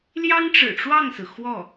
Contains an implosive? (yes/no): no